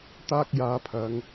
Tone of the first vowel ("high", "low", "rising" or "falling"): high